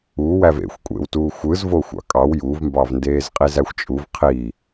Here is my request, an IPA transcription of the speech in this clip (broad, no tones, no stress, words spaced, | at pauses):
uwæv ḛxʷ kʷʼḛwtuː xʷɯːzvo xʷɑ̰kʼɑw juvmbɑv ndeːzqʼizæxʷt͡ʃʼuv qʰi